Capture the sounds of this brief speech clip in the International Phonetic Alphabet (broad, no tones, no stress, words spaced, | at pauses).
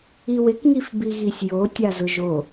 iwɪkŋif biɣisʲjo tʲazʊʒo